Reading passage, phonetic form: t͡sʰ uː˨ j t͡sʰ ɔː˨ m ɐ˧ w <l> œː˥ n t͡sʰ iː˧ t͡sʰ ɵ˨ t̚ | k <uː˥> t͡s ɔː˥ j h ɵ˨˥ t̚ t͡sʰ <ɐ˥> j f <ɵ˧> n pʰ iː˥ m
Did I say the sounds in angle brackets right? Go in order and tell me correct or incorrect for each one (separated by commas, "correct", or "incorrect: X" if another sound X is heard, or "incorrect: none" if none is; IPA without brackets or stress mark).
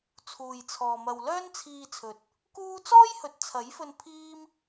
correct, correct, incorrect: ɐ˨˥, correct